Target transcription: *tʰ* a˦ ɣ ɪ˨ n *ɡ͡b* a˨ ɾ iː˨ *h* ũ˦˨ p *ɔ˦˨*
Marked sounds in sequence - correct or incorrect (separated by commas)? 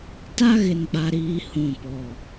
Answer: incorrect, correct, correct, correct